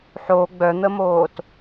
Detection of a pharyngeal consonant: present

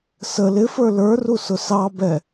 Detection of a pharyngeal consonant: absent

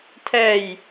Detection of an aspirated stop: present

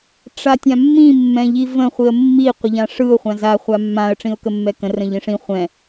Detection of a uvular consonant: present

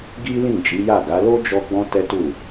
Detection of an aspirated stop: absent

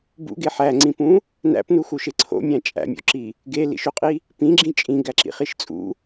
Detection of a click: present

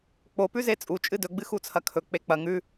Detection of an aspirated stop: present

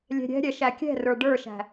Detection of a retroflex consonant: present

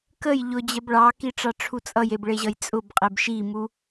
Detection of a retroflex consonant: present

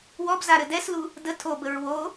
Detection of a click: absent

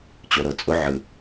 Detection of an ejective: present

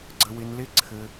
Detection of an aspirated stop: present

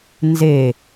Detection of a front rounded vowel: absent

